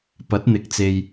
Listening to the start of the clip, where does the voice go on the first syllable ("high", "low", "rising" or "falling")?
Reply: rising